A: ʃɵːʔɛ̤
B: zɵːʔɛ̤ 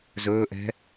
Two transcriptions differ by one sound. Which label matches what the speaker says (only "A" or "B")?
B